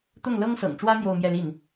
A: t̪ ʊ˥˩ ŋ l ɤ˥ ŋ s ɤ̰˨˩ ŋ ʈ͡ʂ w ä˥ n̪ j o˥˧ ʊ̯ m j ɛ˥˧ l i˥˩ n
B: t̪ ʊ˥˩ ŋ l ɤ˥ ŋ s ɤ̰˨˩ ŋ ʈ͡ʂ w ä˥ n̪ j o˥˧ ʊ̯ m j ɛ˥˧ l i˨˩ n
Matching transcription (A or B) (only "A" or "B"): A